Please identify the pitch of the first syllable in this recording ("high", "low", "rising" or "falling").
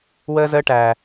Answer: high